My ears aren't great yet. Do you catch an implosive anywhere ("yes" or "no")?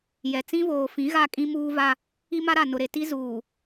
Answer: no